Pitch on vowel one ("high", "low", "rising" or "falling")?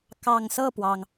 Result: low